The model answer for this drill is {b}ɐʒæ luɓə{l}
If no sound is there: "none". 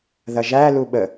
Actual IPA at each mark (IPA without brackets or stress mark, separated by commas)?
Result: ð, none